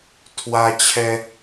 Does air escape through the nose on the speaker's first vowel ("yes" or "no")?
no